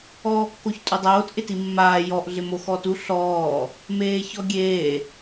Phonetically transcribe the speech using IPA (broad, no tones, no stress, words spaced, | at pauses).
ɔːkːoçtʼudˤoːt ʔɪtimːaː jɔʔ ɮɪmoxɔtu ɬɔː | meːçɔɡʲeː